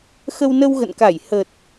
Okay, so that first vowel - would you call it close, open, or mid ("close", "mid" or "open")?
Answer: mid